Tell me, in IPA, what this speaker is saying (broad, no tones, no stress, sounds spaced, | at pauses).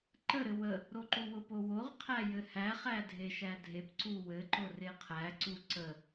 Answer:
ǃ ə ɾ ɘ w ə | ɾ o ǃ u w ʊ p o w o ʁ qʰ æ j ɘ h æ χ æ dʱ e ʃ æ dʱ e p ǀ u w ɘ ǃ ʊ r e qʰ æ ǀ u ǀ ə